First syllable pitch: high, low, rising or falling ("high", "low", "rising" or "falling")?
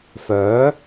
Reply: rising